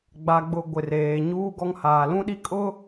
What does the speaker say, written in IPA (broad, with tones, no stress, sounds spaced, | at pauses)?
ɡ͡b a˨ ɡ͡b ʊ˨ ɡʷ ɪ˨ r eː˨ ɲ uː˦ ɡ ɔ˦ ŋ h aː˨ l ũ˦ ɗ i˦ kʼ ʊ˦